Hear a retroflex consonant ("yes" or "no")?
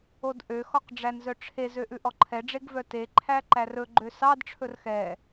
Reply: yes